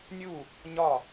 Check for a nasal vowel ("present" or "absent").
absent